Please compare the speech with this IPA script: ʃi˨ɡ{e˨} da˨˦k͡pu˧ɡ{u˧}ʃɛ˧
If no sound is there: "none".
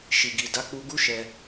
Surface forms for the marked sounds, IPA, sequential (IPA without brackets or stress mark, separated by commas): i˨, u˦